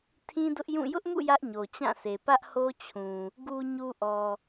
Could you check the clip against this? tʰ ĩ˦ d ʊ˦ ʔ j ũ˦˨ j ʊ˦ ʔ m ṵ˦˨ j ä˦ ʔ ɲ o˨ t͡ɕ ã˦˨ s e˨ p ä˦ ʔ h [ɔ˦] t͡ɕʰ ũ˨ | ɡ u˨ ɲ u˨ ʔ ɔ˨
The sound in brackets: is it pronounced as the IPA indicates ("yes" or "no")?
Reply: no